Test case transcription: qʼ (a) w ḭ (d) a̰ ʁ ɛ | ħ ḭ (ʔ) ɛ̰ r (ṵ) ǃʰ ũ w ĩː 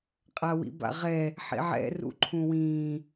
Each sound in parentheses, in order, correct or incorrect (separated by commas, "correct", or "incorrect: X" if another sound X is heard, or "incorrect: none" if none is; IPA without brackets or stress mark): correct, incorrect: b, incorrect: ʕ, correct